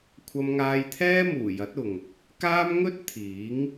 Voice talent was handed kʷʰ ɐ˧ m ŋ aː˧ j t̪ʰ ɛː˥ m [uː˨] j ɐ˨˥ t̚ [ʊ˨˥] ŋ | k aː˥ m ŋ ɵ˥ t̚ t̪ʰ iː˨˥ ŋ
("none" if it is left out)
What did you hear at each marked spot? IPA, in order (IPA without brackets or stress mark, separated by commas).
uː˨˩, ʊ˨